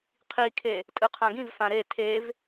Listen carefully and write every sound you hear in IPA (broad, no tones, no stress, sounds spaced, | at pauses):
qʰ i kʰ e | tʼ ɯ qʰ ã ɡ ĩ v f ã ɾ e tʰ e v